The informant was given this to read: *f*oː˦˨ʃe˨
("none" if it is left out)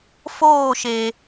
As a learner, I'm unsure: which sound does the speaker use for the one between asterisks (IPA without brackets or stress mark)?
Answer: f